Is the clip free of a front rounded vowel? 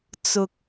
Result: yes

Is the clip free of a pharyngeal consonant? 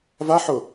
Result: no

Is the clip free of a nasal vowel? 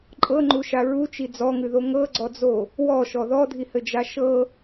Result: yes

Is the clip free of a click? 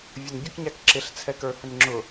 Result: no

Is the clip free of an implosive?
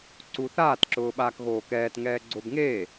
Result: no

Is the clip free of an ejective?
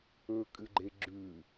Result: no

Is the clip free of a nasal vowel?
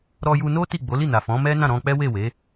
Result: no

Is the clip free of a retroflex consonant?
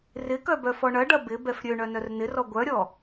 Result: no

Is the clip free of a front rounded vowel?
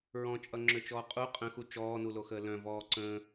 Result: no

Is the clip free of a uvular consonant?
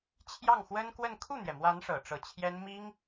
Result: yes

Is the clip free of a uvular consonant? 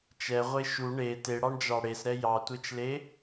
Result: no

